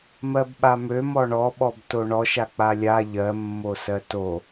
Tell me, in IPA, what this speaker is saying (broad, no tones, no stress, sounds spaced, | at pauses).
m ɜ b ɓ a m ø m ɔ ɳ ɔ ɓ ɔ b t o ɳ ɔ ʃ a k͡p a lʲ a ʎ ɜ mː o s ɜ t o